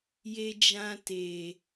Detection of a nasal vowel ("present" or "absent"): present